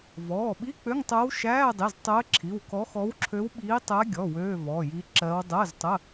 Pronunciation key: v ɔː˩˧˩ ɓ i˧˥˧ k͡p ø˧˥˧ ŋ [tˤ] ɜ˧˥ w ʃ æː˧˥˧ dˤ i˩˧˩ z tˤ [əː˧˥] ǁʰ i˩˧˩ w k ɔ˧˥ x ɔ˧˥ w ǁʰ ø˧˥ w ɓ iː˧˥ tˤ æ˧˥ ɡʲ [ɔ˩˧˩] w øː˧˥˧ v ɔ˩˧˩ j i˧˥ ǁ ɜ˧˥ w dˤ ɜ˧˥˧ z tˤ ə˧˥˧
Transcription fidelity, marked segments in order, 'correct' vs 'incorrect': correct, correct, correct

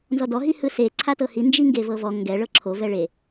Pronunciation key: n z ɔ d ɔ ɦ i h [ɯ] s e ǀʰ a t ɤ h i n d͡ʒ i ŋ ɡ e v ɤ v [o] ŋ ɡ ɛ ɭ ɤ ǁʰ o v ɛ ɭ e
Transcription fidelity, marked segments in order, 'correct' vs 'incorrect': correct, incorrect

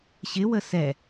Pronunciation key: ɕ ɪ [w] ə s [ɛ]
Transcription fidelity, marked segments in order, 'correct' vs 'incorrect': correct, correct

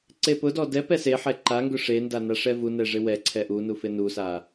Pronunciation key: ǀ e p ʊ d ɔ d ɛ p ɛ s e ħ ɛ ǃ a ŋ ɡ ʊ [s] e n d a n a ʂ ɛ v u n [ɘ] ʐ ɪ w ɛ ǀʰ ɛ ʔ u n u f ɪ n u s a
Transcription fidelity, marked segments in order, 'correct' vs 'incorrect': incorrect, incorrect

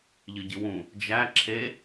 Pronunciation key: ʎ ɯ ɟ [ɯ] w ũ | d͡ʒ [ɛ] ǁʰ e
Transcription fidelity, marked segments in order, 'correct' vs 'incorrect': correct, incorrect

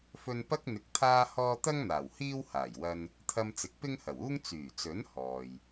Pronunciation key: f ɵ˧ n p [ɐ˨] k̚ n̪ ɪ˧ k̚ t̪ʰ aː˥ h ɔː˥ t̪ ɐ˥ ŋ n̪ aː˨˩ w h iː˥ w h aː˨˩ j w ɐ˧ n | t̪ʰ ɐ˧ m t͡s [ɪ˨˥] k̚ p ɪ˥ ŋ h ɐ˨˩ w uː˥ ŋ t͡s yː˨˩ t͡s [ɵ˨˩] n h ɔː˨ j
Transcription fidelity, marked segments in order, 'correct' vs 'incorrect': incorrect, correct, incorrect

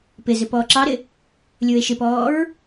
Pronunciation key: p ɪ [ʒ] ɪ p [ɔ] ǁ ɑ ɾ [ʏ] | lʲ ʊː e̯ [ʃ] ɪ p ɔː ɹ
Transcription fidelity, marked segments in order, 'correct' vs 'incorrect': incorrect, incorrect, incorrect, correct

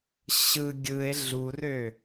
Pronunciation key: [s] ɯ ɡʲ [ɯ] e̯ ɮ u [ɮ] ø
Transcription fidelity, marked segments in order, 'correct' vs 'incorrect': incorrect, correct, incorrect

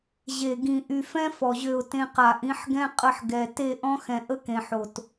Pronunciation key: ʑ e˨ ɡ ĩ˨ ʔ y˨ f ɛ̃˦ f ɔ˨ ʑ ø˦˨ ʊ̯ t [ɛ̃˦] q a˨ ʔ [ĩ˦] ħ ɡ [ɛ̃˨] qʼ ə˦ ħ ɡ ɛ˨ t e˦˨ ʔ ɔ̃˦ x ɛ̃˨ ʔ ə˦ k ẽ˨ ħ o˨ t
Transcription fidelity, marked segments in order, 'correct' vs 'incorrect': incorrect, incorrect, incorrect

